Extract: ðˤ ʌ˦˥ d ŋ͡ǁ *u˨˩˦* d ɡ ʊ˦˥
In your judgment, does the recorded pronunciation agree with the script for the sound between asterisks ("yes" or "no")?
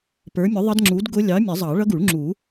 no